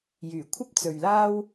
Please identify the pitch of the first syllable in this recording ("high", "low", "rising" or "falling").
low